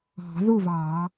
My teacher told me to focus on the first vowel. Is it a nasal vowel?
no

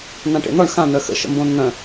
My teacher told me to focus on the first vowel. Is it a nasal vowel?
yes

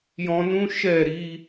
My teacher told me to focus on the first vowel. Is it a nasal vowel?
yes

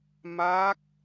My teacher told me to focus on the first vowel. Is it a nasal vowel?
no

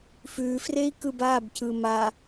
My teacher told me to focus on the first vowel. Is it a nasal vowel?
no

